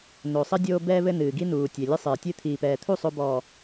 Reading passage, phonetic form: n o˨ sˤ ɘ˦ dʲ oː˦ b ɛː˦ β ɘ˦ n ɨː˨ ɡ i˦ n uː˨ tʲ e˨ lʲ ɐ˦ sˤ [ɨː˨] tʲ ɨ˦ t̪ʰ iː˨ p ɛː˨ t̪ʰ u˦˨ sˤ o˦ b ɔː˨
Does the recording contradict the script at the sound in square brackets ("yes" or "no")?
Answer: no